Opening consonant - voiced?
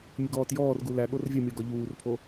yes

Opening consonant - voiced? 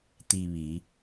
no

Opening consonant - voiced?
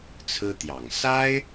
no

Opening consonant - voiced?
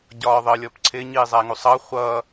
yes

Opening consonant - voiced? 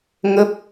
yes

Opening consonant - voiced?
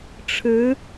no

